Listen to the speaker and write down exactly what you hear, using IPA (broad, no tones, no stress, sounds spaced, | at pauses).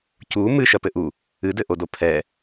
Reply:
c u m ɨ ʃ ɐ p ɘ ʔ u | ɨ d ɘ ʔ o d o pʰ ɛ